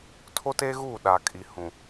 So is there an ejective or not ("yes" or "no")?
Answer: yes